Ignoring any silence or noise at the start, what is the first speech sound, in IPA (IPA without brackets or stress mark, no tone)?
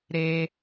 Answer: ɾ